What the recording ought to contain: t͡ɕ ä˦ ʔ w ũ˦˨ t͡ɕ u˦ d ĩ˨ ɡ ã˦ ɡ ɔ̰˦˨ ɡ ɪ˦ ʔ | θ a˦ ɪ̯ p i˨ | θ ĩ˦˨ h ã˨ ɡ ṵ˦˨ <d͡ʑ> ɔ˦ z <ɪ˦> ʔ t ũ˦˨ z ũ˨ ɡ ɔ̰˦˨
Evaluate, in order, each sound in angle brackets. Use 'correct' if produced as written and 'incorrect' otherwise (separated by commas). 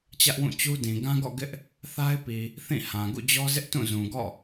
correct, correct